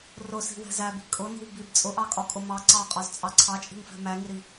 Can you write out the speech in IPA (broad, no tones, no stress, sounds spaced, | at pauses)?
r ʊ s i̤ w ɛ̤ z æ b i̤ kʼ ʊ n i̤ w b i b t͡sʼ ʊ ʔ ɑ kʼ ɒ kʼ ʊ m ɑ ǀ ɑ qʼ ɒ z t͡sʼ ɑ ǀʰ ɑ t͡ʃʼ i̤ ŋ f ɛ̤ m æ ŋ i ɾ i